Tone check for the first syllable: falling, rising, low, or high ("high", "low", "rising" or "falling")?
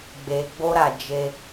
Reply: low